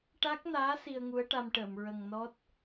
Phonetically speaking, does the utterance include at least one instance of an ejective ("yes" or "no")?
no